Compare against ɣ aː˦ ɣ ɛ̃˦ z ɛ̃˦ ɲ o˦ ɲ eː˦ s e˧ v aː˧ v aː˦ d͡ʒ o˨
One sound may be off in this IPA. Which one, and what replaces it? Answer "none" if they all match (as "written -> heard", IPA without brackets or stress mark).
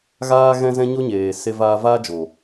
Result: eː˦ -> eː˨